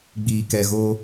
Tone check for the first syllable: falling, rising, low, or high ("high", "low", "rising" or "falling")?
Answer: low